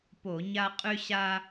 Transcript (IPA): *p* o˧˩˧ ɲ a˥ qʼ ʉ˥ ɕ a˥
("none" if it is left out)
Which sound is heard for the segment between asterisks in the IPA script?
p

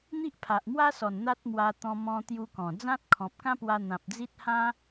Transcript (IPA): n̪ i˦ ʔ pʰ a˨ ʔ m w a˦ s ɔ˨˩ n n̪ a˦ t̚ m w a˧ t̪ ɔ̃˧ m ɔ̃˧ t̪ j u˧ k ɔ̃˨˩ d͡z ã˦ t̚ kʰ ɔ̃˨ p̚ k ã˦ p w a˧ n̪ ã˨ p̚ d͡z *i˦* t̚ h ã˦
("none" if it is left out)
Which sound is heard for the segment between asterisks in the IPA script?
i˦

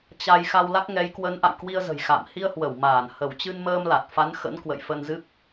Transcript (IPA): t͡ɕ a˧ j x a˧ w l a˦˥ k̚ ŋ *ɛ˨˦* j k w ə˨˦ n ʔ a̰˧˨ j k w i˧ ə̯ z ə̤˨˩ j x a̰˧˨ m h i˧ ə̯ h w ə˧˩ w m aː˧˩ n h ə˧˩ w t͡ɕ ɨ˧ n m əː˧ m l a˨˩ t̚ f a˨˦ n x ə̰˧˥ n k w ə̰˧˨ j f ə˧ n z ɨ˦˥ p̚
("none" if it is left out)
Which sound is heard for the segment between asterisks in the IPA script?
ɛ˨˦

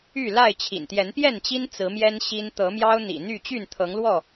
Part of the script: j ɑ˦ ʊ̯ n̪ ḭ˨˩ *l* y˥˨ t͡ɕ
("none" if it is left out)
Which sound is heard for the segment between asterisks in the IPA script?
n̪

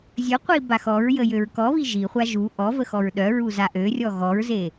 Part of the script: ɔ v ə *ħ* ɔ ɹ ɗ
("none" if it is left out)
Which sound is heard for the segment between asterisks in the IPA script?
x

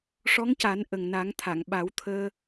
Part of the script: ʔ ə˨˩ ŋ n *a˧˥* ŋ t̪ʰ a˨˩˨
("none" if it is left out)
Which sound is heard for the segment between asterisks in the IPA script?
a˨˩˦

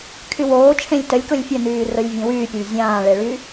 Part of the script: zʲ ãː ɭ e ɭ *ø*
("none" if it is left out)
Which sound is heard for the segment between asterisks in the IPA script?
y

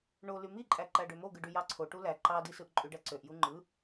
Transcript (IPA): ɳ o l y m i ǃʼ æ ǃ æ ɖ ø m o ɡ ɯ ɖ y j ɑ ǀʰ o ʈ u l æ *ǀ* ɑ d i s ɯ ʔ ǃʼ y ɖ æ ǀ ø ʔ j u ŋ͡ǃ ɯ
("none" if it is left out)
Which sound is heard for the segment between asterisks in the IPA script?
ǃ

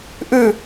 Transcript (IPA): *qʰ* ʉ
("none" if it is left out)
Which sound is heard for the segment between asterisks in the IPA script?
ʔ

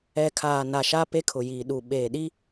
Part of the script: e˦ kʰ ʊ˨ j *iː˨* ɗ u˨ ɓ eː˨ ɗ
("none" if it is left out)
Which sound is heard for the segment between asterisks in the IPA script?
iː˨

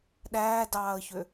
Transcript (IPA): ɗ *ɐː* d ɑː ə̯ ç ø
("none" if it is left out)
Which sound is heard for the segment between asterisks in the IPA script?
æː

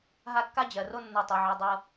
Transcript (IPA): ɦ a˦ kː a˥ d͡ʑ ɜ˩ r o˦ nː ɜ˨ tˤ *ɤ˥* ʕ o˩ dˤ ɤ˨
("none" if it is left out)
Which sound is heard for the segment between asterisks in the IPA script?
ɤ˩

